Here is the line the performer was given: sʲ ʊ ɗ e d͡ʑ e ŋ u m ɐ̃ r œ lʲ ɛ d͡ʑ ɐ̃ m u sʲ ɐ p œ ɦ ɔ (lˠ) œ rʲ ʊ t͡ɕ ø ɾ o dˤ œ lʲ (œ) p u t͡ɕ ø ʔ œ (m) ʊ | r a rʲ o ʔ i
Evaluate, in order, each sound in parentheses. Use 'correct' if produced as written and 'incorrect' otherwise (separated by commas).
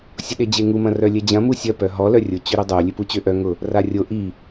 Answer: incorrect, incorrect, incorrect